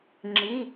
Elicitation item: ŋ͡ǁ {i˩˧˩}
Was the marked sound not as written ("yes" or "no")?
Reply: yes